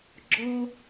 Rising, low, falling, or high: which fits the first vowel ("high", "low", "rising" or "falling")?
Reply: high